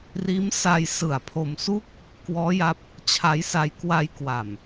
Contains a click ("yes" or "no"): no